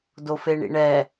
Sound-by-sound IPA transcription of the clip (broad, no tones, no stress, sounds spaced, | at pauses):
d o f e ɳ ḭ ɳ ɛ